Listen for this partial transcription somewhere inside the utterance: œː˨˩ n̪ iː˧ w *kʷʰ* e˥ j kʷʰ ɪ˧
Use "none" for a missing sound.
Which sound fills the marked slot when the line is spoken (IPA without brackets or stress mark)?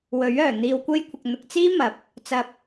kʷ